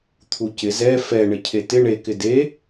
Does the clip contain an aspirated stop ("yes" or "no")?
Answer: yes